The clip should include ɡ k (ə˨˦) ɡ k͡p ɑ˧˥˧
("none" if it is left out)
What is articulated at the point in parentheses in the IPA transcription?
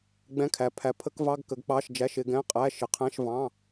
ə˨˦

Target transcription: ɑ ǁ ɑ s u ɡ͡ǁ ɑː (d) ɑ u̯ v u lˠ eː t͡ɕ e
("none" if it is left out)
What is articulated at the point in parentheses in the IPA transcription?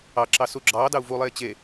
d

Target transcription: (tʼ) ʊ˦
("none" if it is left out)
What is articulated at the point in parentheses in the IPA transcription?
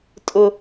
tʼ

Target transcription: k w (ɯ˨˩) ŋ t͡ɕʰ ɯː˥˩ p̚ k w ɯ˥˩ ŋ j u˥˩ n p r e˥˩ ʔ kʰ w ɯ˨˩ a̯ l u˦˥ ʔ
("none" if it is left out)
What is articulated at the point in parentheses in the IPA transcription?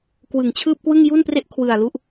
ɯ˨˩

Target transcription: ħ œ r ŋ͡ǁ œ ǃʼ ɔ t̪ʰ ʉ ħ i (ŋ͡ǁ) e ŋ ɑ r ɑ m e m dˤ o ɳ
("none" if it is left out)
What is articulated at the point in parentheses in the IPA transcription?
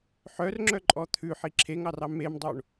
ǁʰ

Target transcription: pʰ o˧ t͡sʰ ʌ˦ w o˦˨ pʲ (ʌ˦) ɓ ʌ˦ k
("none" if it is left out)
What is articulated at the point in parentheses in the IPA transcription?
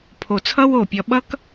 ʌ˧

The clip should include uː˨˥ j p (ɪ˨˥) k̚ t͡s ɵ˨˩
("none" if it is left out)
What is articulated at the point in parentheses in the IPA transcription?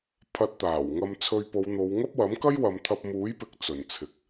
ɪ˨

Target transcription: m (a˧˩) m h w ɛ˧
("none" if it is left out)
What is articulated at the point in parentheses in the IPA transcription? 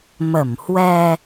ə˧˩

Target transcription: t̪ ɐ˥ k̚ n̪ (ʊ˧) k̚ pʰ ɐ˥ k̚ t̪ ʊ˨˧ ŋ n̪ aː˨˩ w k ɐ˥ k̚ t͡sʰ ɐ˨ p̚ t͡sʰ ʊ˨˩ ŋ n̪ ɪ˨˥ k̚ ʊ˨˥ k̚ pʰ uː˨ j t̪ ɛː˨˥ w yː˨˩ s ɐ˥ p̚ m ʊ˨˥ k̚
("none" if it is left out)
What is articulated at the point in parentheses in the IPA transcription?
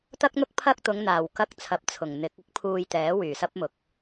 ʊ˥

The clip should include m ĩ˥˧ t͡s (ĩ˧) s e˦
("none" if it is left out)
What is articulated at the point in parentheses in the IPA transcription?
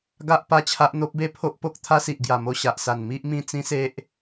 ĩ˦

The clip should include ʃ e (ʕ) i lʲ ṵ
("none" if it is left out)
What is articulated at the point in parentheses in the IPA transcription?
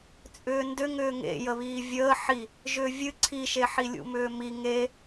ħ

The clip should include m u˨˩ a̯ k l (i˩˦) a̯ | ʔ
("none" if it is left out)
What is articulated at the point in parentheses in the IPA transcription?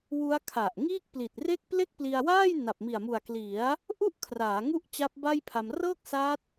i˩˦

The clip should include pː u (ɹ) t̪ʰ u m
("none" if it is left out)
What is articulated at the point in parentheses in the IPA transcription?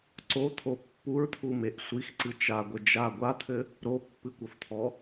ɹ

